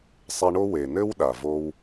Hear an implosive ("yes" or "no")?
yes